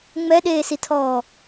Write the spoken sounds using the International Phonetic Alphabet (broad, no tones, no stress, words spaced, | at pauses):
ŋ͡mɛɗeːsitʰɔː